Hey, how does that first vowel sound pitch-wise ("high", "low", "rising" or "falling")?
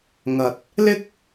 low